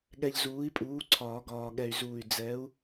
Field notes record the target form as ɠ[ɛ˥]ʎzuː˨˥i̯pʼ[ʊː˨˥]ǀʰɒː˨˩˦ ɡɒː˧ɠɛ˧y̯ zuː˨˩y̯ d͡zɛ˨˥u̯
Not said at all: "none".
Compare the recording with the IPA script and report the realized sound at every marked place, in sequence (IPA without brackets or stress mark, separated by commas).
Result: ɛ˧, uː˨˥